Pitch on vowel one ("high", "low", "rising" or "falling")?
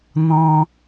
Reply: high